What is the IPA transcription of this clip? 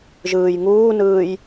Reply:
ʒ ɯː j ŋ uː n ɯː j

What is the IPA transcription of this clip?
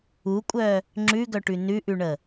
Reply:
u kʷʼ œ | ŋ͡ǁ ʉ ɡ œ ʈ ʉ n ʉ ʔ ʉ ɳ ə

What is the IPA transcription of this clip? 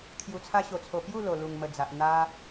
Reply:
kʰ j u˨˩ t͡sʰ a˧ ɕ o˨˩ t͡sʰ o˨˩ p j u˥˧ l o˨˩ l u˨˩ ŋ m ə˨˩ d͡z a˨ ʔ n̪ a˧

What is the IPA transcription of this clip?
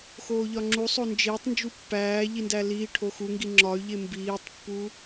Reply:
x oː ʎ ɒ ŋ͡ǁ u sˤ o n d͡ʒ eː tˤ n d͡ʒ u pː æː ʎ i n d æ l iː ʈʰ o x u ŋ ɡ i ŋ͡ǁ ɒ y̯ ʎ e m b iː tˤ pː u

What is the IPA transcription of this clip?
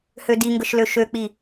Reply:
h ø d i ŋ ɡ ə ʃ l ø ʃ ø k͡p i

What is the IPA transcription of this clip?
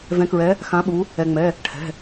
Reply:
v ɛ̃˨˦ k ɹ ɛ˨˦ | x ã˨˦ ɓ u˨˦ | ɛ˩ ŋ͡m ɛ˩˧˩ | ʈʰ ɛ̤˩˧˩

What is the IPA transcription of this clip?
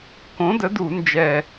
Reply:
k õ˨˥ d ə˨˥ d u˧˩˧ n d͡ʒ ɛ˨˩

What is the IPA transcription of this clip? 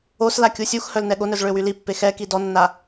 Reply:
o s l a kʲ u sʲ u x h œ l n ɛ ɠ o n œ z ɭ ø w y l i pː e x ɛ k i d ɔ nː a

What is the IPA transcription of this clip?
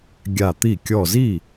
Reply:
ɡʲ a˧˩ t̪ i˥˩ kʲ ɔ˧˩ z i˥˩

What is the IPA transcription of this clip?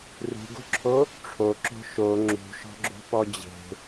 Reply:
r ṳ ɡ o̤ ǁʰ o | ʈ͡ʂʰ o ǁ o̤ ʃ o ŋ͡ǁ ṳ ʃ ɔ̤ ɡ͡ǁ o̤ p ɔ d͡ʑ e̤

